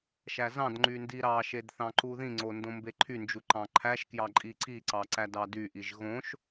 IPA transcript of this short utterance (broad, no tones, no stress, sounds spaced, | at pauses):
ʃ æ z ɑ̃ d ŋ͡ǃ y n d i ɾ ɑ ʃ e d θ ɑ̃ ǃ u ð ĩ ŋ͡ǀ o n d õ m b e ǃʰ y n d͡ʒ u ǃ ɑ̃ ǃʰ æ ʃ k j ɑ ǃʼ i ǀ i ǀ ɑ ǀ æ d ɑ d y ʔ i ʒ ɣ õ ʃ